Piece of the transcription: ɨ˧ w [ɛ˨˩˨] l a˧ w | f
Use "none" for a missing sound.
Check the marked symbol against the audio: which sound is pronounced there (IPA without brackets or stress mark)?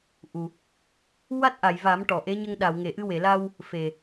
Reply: e˨˩˨